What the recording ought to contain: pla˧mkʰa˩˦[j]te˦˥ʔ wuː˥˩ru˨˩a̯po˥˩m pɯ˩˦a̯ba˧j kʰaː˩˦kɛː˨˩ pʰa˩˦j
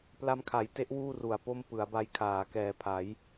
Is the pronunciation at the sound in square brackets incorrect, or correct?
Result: correct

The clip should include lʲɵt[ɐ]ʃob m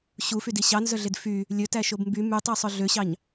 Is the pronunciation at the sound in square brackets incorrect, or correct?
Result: incorrect: æ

